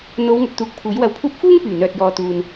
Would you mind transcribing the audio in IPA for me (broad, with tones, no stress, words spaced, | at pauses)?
n̪o˨˧wŋɵ˨t̚t̪uː˨k̚ pʰuː˨˥jwɐ˧wpʰuː˥p̚ fuː˥ŋpyː˨˩ n̪œː˨t̚jɔː˨ t̪uː˨n